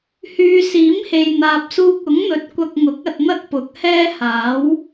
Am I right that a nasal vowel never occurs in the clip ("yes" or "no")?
yes